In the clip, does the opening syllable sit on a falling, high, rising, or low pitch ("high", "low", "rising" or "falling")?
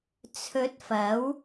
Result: rising